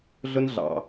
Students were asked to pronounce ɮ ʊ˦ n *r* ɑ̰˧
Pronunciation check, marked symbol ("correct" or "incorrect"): incorrect